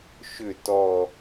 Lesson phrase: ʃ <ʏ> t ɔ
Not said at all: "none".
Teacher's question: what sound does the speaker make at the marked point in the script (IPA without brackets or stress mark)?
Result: ʏ